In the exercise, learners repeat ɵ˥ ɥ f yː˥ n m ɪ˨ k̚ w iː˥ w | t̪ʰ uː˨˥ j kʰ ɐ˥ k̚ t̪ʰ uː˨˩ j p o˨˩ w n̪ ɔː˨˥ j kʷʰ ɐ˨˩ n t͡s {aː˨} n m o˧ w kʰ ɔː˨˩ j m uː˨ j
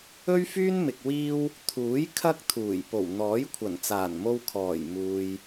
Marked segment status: incorrect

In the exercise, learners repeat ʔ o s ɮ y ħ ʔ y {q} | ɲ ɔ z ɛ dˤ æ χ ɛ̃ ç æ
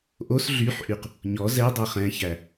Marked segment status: correct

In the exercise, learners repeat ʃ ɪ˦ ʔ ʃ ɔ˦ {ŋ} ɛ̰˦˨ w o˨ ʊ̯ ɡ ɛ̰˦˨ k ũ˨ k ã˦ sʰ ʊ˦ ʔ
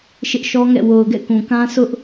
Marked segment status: correct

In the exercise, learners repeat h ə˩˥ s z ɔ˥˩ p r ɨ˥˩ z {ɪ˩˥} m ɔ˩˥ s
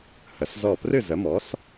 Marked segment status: incorrect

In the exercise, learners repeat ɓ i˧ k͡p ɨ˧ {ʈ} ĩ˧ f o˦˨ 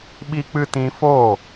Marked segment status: incorrect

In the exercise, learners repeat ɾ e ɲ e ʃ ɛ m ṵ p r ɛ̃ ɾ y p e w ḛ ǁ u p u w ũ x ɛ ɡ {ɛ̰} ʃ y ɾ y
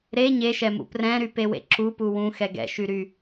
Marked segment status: correct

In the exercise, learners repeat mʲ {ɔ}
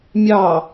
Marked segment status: incorrect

